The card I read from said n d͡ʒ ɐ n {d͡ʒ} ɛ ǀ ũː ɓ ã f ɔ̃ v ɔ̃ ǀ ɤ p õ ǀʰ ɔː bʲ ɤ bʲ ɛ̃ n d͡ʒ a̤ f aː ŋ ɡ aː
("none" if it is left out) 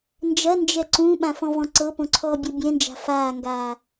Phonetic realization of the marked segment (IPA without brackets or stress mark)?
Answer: d͡ʒ